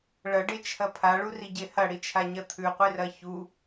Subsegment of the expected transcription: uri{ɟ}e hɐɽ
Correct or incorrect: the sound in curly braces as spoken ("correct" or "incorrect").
correct